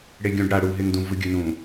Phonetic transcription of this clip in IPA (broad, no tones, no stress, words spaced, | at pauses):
ɽeɡʲũɖ ɽa ɽu ɦeŋdũ vɯɡʲɯnũ